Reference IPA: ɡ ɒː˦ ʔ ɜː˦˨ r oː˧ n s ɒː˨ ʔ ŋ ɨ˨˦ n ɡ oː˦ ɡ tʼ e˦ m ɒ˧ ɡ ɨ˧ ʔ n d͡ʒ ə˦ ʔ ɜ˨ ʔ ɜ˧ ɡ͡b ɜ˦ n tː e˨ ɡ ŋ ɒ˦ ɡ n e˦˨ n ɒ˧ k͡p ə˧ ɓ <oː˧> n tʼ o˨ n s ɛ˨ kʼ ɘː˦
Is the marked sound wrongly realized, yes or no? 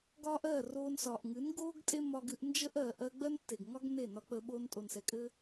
no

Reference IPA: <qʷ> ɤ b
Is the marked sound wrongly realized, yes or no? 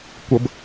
yes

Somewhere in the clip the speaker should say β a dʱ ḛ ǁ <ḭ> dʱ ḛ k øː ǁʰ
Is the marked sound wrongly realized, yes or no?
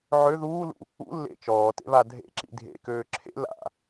no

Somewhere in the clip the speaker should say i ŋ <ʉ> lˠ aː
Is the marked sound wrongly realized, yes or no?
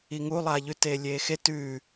yes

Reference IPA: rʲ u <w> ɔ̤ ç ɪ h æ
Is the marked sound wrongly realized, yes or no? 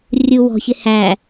no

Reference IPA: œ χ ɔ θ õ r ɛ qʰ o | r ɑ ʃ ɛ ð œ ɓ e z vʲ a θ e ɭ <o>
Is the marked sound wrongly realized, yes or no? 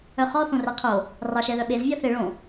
yes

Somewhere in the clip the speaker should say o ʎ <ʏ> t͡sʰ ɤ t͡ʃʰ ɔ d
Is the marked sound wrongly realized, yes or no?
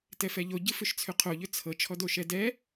no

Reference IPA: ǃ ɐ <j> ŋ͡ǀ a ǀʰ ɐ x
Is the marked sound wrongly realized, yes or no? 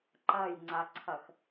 no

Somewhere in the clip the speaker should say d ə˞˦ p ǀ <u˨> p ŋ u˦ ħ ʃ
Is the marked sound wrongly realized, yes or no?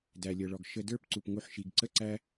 yes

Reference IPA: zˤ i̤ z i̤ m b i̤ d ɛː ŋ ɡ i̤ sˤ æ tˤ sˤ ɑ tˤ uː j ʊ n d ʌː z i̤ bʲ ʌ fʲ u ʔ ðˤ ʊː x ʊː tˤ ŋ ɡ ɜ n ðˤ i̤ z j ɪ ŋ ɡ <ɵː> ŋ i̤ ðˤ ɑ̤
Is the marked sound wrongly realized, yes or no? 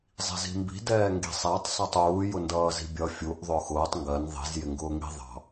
yes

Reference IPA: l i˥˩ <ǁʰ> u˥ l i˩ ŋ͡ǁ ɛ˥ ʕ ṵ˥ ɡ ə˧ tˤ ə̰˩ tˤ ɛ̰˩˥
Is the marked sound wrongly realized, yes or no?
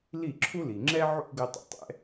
no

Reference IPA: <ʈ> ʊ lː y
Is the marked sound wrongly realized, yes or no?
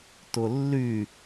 yes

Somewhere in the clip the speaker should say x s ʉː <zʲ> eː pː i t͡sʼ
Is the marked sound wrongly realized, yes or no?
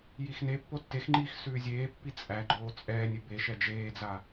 no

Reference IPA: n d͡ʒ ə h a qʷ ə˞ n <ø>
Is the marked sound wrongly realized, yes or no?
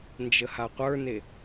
yes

